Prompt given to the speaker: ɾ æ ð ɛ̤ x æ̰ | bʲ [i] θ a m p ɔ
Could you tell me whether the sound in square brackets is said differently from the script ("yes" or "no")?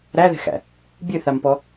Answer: yes